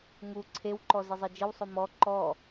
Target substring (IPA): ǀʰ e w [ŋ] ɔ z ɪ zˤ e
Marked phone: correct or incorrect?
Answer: incorrect